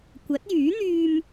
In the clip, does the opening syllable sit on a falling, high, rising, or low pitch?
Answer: rising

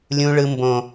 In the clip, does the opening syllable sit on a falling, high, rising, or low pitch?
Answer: high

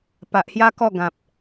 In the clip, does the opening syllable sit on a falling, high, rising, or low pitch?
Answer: low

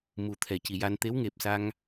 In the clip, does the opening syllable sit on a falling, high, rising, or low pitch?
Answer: low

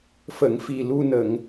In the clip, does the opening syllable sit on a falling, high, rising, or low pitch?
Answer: low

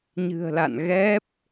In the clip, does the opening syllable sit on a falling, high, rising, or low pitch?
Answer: low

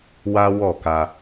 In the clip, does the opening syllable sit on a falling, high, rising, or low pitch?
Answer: high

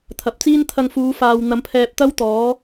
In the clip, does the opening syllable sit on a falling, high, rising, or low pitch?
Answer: low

